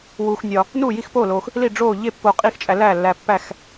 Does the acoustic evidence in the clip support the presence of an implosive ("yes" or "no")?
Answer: no